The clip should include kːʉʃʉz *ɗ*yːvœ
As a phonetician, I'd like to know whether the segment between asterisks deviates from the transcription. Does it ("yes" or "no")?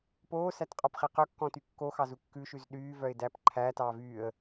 no